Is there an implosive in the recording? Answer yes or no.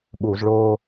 yes